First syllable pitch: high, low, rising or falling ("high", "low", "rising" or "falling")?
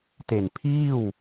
low